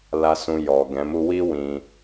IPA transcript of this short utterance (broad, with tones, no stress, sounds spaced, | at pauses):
l a˧ s ũ˧ j ɔ˨ ɡ ɛ̃˨˦ m u˦ w i˦ w ĩ˧